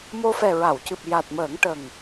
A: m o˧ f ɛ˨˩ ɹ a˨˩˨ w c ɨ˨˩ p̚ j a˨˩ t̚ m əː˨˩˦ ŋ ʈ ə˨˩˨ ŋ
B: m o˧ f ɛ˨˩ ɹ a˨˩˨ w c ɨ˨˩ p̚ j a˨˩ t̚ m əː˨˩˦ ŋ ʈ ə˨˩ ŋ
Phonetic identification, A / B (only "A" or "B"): B